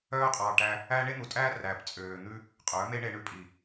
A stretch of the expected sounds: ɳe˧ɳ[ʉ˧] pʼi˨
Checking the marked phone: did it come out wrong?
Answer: no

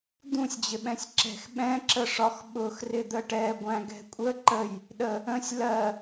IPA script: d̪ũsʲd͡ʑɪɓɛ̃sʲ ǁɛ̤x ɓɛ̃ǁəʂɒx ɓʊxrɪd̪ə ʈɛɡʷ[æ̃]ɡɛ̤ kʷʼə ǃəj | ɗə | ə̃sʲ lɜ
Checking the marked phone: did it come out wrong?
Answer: no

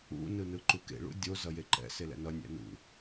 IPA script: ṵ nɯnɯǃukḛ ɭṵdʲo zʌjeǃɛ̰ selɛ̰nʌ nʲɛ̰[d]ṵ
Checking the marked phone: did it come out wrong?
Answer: yes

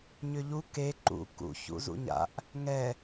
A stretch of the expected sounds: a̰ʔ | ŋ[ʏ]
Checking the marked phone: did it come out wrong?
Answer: yes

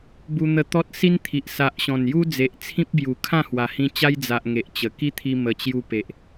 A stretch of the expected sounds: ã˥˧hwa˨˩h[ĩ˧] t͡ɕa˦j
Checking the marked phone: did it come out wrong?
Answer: no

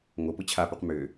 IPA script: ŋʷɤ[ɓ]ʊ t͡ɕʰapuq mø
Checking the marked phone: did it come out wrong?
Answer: yes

